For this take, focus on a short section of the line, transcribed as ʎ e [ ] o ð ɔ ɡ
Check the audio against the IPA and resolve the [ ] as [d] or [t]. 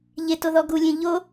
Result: t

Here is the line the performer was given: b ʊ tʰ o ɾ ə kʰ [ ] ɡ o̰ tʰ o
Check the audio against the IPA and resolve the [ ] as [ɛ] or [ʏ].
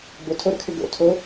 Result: ʏ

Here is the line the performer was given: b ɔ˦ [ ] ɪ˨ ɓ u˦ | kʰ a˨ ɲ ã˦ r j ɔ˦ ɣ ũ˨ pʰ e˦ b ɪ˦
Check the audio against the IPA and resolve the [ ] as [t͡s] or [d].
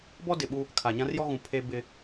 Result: d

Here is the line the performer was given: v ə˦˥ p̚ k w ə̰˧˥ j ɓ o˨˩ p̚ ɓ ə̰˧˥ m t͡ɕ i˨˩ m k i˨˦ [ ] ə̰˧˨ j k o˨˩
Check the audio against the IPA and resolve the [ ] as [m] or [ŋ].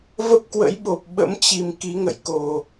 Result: ŋ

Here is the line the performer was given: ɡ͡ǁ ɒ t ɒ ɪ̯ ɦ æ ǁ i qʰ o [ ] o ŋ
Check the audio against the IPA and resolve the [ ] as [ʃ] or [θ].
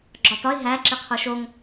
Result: ʃ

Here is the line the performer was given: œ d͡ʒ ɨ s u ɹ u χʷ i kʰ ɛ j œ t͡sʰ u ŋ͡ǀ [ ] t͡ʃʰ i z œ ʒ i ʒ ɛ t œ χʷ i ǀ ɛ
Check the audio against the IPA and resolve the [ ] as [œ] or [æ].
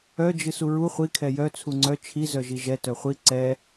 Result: œ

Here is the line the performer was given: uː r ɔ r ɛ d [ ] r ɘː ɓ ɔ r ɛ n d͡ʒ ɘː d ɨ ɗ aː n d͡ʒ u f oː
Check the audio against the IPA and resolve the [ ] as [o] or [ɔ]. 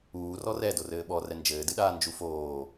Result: o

